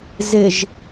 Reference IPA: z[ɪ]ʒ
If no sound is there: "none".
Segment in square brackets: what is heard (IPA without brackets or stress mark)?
ɪ